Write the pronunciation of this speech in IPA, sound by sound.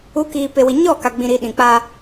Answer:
u˨˦ k iː˨ p e˨ w i˨ ɲ ɔ˦˨ k a˨ ɡ͡b ĩ˨ ɾ i˨ ɗ ĩ˨ k͡p a˦

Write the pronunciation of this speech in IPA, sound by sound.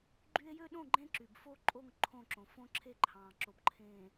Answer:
ɡ͡ǃ y˦ e̯ j ø˦ ɗ õ˦˨ ɡ͡ǃ ẽ˦ ǁ y˨ b f o˦ ǃʼ o˦˨ ŋ ǃʰ õ˦˨ ǁ õ˨ f õ˦ ǁʰ e˦ ǃʰ ɑ̃ː˨ ǁ o˨ b ǃʰ ẽː˨

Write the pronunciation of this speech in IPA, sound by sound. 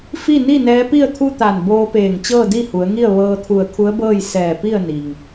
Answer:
f i˥˨ n i˥˨ n ɛː˧˥ p i˥˨ ə̯ t̪ʰ u˥˨ t̪ a˧˩ n b oː˧ p eː˧˩ ŋ t͡ɕ ɤː˥˨ d i˥˨ h u˩˧ ə̯ ŋ i˥˨ ə̯ ʋ ɤː˧ t̪ʰ u˧˩ ə̯ kʰ u˧˥ ə̯ b ɤː˥˨ j s ɛː˧˩ p i˥˨ ə̯ n i˩ ŋ

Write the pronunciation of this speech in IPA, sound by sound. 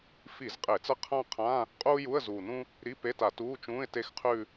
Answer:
f i˧˩˧ z qʼ e˧˩˧ t͡s ɐ˥ qʰ ã˥˧ qʰ ã˧˥˧ | qʼ uː˥ j u˧˥˧ ə̯ z uː˨˩ n ũ˥ | ɾ i˧˥˧ p e˧˥˧ t a˧˩˧ t uː˧˥˧ t͡ʃ ũː˧˥˧ ɪ̯ t e˥˧ x qʰ ʉ˥˧

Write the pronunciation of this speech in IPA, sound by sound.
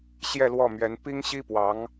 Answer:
ɕ j ɛ˥˧ l w ɔ˥˩ m ɥ ɛ˧˥ n p i˥ ŋ ɕ i˥ p w ɑ˧˥ ŋ

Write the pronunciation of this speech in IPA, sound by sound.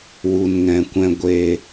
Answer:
w u˧ n ŋ ɛ̃˧ kʷ ɛ̃˦ ɡʷ e˧

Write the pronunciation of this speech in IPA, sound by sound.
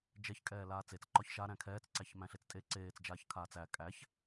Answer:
d͡ʒ ɛ ç kʼ ɛː l aː t͡s e t͡s ǃ ɒ ç ʃ a ɾ æ̃ kʰ ɛː t͡s ǀ æ ç m æ̃ ɬ e t͡s tʼ e ǀ eː t͡s d͡ʒ aː ç kʰ aː t͡s æ kʼ æ ç

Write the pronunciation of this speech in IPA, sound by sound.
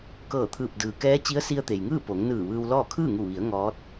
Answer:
k ɤː˧˩ t̪ʰ ɯː˧˩ p̚ d ɯː˩ k ɛː˧˥ t͡ɕ i˧˥ ə̯ s i˧ ə̯ t̪ e˩ j ŋ ɯː˥˨ p o˩˧ ŋ n ɯː˧˩ ʋ ɯː˧ w l ɔː˥˨ kʰ ɯː˥˨ ŋ u˧˩ ʋ i˩˧ ə̯ ŋ ɔː˧˥ t̚

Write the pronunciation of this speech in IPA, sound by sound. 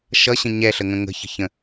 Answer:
ʃ ʌ ɕ ə̃ ɲ ɛ ɬ ə ŋ ə̃ ŋ ə̤ ç ə̤ ç ə̃

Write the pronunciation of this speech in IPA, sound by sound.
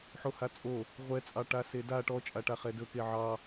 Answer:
ħ o h a t͡sʼ o | ʁʷ ɛ t͡sʼ ɑ ʈ a s e d a ʈ ɔ t͡ʃʼ a ʈ a χ ɛ d ɵ k e ʕ ɑ

